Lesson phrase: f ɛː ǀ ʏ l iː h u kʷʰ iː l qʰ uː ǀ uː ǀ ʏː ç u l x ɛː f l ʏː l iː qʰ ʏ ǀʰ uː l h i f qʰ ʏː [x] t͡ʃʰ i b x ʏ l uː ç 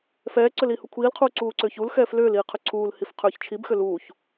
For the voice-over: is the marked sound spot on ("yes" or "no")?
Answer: no